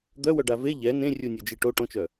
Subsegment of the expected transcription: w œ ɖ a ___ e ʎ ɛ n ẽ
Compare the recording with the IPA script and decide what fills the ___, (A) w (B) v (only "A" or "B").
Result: B